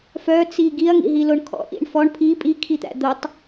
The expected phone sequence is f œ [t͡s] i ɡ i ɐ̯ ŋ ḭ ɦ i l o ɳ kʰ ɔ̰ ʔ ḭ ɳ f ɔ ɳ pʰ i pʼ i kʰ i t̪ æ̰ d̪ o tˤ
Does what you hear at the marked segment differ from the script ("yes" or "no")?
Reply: no